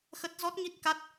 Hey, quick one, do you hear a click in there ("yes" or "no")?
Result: no